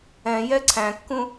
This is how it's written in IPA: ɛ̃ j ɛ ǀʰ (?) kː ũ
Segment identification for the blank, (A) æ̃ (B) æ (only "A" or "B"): A